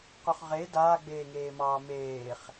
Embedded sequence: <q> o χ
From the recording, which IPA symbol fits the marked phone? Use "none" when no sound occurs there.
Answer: q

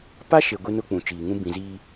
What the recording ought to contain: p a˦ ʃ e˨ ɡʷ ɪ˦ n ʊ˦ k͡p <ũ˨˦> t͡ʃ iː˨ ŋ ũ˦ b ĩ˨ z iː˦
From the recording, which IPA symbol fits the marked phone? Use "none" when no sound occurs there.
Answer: ũ˨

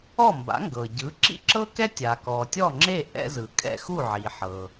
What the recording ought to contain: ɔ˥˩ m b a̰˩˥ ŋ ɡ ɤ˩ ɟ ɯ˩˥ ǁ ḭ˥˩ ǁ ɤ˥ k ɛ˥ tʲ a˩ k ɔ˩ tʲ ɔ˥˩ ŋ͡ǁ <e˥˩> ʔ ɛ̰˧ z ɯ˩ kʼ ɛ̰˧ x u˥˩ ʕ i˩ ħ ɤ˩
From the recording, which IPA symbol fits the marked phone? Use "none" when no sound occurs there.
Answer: e˥˩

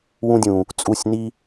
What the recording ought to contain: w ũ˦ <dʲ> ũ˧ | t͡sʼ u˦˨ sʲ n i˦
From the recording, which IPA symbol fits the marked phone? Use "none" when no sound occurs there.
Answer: dʲ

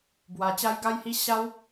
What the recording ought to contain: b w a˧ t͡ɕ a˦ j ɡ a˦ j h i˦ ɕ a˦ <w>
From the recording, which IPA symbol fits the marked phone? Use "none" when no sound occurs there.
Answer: w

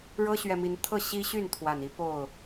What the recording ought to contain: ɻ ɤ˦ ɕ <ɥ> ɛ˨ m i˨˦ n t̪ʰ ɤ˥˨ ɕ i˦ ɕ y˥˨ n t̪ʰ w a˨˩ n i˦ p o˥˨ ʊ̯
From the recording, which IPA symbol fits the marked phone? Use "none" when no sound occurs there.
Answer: ɥ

